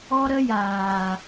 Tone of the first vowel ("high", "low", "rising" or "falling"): high